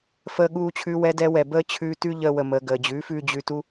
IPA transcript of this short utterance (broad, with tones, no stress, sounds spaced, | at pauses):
f əː˧ ɠ uː˧ t͡ɕʰ ʉ˧ w ɛ˧ d ɛ˧ w ɛ˨ b əː˦ t͡ɕʰ ʉː˧ t ʉ˦ ʎ əː˧ w ə˨ m əː˨ ɡ əː˨ d͡ʑ ʉː˨˦ f ʉː˧ d͡ʑ ʉ˧ t u˦